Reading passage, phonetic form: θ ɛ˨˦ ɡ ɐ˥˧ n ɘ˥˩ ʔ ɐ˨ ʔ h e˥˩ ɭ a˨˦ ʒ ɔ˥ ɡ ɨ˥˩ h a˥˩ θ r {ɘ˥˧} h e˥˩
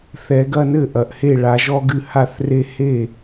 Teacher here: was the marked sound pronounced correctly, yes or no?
no